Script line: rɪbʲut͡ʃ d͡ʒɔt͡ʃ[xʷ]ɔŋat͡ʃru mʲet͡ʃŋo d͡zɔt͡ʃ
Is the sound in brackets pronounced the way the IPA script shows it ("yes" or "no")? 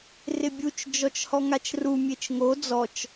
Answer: no